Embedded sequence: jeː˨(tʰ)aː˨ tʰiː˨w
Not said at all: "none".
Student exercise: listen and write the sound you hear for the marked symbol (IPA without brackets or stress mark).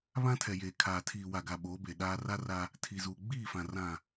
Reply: kʰ